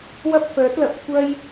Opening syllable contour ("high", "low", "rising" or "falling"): high